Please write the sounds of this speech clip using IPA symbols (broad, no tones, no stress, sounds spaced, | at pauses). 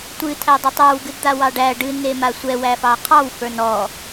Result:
tʷ ɨ tʰ æ dˤ ɛ tˤ ə˞ w ɡ ɨ d d̪ a w ɑ ɖ æ ɖ ɨ n e m a sʷ ɛ w æ f ɑ qʰ ɑ w f ə˞ n ɔ